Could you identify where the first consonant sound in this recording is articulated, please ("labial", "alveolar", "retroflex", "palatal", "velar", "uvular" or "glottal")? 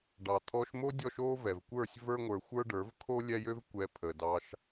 retroflex